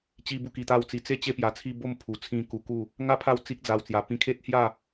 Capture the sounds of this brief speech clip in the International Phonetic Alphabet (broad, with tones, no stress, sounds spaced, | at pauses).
t͡ɕ i˧ b u˧ k i˧ t̪ a˥˧ w t͡s i˧ t͡s e˥˧ t͡ɕ e˥˧ p j a˧ t͡sʰ i˥˧ b o˥˧ m pʰ u˨˩ t͡sʰ ĩ˧ k u˧ k u˥˧ | ŋ a˥˧ pʰ a˦ w t͡s i˦ k̚ d͡z a˧ w t͡s j a˧ p ĩ˧ kʰ e˦ t̚ h j a˥˧